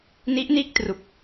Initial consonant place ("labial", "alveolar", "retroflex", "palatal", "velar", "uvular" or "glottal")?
alveolar